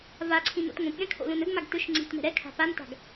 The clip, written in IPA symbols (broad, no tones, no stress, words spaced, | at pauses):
vaǀʰĩ no̰tŋõpɠɛ̃ kʰo̰lõnɵɡmaɡ tɵʃ ŋ͡ǀi̤tmɛ̤ ɾɛkʰa̤ panta̤ɡ